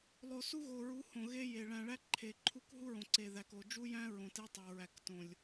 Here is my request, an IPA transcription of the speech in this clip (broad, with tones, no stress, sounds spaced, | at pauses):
lˠ o˨ s u˦ ɣ o˨ ɹ u˨˦ h õ˨ ɣ e˦ j e˨ ɭ æ̃˨ ɭ æ˦ ǃʰ e˨ ǃʰ u˦ k ɦ u˦ ɹ õ˨ ǀ e˨ ð æ˨ k o˨ d͡ʒ u˦ j æ̃˦ ɹ õ˨ t e˦ tˤ o˨ ɹ æ˨ k t õ˨ lʲ